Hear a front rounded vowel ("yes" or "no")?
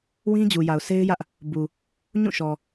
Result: no